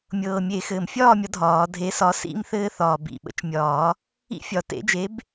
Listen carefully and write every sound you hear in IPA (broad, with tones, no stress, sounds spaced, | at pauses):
mʲ ɤː˨˩ mʲ e˨˩˦ x ɘː˨˩ m fʲ ɒː˥˨ mʲ ɒ˨˥ dʱ ɒː˨˩˦ dʱ e˨˥ s ɒ˨˥ s ḭ˦ m θ ɘː˦ θ ɒː˨˩ b ḭ˨˩ ɓ ə̰˨˥ t͡ʃ mʲ ɒː˨˩˦ | ḭ˦ fʲ ɒ˨˩˦ t ḛ˨˥ d͡ʒ e˨˥ b